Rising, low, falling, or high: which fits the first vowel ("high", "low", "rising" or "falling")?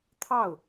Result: falling